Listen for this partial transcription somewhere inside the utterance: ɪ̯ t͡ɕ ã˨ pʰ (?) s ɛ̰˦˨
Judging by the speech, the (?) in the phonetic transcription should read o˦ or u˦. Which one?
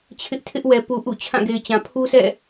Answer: u˦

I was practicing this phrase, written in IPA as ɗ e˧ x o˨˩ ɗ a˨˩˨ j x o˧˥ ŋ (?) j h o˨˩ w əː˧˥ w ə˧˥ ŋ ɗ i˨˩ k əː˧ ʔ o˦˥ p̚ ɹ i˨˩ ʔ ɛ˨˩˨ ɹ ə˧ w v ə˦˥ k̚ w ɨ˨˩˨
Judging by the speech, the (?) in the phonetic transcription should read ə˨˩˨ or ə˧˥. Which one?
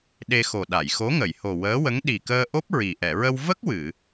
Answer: ə˨˩˨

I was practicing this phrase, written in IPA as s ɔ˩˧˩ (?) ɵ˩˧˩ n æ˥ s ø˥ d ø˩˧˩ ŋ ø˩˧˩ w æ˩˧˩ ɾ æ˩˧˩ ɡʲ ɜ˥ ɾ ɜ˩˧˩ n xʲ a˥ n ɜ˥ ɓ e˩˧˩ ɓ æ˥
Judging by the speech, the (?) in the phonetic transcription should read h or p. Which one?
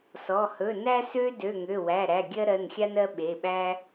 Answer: h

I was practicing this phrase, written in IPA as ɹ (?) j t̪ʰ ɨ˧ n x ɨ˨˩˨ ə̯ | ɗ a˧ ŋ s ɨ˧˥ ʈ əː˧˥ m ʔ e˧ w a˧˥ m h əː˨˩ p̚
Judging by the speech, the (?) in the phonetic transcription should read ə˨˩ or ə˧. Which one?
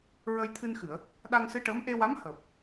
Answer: ə˧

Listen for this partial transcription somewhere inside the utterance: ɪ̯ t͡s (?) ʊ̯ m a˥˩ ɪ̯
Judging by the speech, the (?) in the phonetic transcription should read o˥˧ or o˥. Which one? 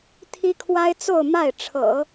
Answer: o˥˧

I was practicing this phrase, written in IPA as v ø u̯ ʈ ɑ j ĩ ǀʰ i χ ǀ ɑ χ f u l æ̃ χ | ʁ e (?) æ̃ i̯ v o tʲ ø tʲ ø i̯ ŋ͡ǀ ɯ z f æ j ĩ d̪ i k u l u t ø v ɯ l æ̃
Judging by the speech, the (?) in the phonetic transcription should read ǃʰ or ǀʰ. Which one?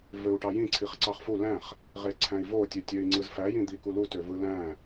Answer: ǀʰ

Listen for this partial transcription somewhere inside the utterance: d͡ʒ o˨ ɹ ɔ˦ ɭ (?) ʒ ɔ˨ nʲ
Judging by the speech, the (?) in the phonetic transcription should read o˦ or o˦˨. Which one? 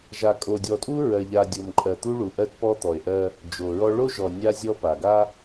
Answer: o˦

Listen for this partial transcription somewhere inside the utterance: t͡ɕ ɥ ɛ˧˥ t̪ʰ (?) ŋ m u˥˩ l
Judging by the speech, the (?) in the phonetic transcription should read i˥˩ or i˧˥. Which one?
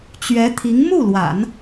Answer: i˧˥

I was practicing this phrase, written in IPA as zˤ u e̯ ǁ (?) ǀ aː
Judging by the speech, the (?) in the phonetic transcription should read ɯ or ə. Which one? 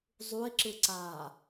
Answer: ɯ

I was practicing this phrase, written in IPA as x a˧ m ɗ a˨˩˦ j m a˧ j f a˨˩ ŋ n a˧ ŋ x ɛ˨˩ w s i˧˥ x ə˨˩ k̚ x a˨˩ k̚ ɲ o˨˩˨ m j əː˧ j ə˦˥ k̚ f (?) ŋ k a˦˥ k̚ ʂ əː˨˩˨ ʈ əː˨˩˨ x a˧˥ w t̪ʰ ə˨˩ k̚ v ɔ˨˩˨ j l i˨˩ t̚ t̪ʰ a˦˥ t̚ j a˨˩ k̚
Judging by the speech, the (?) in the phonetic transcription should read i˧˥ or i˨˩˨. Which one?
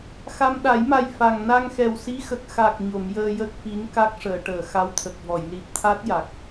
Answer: i˧˥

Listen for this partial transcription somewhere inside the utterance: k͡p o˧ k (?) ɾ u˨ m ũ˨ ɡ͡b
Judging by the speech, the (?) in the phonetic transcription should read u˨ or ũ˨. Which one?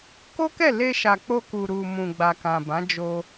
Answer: u˨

